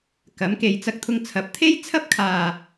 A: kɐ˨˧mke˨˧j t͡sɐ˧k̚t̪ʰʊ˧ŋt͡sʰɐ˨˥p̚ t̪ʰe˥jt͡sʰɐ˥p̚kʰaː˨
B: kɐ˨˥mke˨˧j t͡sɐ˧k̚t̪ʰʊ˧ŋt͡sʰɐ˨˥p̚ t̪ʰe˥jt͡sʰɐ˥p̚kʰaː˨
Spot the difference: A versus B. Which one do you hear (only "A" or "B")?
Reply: B